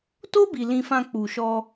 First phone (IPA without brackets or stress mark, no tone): t